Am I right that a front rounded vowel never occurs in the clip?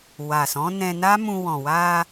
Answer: yes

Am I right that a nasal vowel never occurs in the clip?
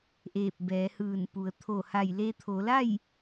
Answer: yes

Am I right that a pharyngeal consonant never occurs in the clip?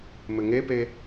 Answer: yes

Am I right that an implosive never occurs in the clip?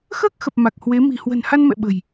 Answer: no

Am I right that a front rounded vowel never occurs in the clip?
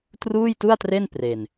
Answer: yes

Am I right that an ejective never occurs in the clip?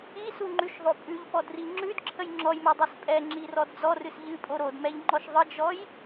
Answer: no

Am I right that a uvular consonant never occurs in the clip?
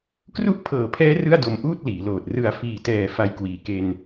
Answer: yes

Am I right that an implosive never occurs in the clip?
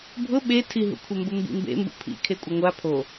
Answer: no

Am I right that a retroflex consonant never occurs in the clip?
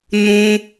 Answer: yes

